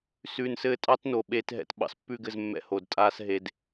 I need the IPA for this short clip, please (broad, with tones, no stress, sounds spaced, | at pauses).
s ʉ˨ n s ɘː˧ tʼ ɑ˦ t n o˨ ɓ eː˧ t ɦ ɛ̰˧ t ɓ ɑ̰˨ s pː ʉ˦˨ ɡ ɘ˦˨ z mː ɛ̰˦ h o˨ d tʼ aː˦ s ɦ e˧ d